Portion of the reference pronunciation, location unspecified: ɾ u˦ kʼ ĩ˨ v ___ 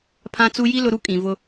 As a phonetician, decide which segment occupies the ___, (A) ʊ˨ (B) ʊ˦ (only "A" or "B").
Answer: B